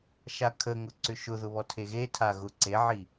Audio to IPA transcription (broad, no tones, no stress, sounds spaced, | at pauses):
ʃ a kʰ ə ŋ ʊ ǀ ʏ ʃ ʊ ð ʊ β ɔ tʰ e ɣ e tʰ a ɣ ʊ ǀ e ʕ i